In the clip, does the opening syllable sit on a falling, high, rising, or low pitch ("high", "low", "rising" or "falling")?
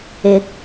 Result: rising